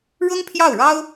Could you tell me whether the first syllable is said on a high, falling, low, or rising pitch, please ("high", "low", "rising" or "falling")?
high